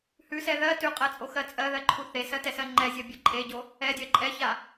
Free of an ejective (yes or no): no